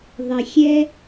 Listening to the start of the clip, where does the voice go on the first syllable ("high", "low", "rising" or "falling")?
low